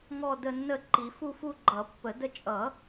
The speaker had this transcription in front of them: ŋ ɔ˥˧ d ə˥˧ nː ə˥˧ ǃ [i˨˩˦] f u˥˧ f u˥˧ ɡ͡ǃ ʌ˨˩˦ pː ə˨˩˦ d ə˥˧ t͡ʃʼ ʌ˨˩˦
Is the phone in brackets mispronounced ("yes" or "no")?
no